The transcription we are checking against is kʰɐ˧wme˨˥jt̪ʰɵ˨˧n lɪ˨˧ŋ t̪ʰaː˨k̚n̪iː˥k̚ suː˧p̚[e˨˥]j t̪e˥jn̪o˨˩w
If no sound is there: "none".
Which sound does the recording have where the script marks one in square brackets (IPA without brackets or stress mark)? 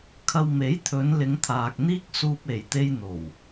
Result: e˨˩